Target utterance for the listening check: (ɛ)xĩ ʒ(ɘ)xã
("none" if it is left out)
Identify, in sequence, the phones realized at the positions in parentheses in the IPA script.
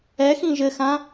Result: ɛ, ɘ

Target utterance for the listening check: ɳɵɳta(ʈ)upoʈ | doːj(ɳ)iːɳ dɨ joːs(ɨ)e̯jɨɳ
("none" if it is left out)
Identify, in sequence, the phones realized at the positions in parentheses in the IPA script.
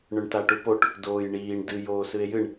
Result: ʈ, ɳ, ɨ

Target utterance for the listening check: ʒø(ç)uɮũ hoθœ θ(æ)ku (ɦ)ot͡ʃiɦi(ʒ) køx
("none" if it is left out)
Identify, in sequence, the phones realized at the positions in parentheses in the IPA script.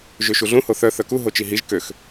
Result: ʃ, œ, ɦ, ʒ

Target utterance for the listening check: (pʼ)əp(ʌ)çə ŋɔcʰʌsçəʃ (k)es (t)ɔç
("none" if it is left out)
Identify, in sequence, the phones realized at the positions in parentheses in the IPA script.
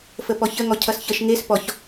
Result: f, ɔ, ŋ, p

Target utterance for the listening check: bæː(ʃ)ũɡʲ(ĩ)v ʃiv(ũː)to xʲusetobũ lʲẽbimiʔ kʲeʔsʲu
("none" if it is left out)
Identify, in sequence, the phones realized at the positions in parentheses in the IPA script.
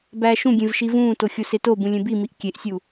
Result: ʃ, ẽ, ũː

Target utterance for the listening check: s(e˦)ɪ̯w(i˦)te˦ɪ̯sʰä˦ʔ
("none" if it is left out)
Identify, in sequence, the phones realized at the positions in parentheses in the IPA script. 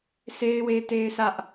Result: e˦, e˦

